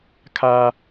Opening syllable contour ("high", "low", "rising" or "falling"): low